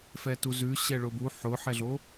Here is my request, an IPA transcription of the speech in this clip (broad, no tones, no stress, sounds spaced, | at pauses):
f ɛ t u z ʉ ɕ ɛ ɭ ʊ b u ħ ʊ ħ ɛ ɮ o